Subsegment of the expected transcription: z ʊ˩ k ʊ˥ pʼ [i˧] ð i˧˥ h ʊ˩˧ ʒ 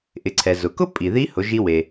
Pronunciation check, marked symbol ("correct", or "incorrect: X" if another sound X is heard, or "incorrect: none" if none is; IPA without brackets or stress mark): incorrect: i˩